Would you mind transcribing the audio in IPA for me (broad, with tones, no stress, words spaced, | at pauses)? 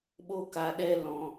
ɓo˦ka˧ɗɛ˦ lɔ̃˧